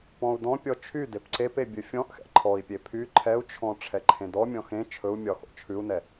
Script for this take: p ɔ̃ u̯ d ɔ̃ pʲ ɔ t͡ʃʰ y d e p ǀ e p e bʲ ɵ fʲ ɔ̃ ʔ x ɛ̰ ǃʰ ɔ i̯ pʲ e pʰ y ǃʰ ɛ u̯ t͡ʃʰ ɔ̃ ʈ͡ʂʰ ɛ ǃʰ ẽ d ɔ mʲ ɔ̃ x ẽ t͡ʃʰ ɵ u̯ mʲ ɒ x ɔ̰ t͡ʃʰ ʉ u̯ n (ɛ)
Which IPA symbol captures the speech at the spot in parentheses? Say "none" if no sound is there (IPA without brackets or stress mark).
ɛ